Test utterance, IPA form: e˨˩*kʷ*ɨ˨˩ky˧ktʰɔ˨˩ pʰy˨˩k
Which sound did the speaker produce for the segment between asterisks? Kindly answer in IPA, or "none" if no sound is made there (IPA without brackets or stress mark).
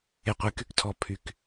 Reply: qʷ